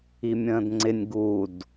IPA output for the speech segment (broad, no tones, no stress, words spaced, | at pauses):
imʲə̃ːdŋ͡ǀɪnʲ ɡud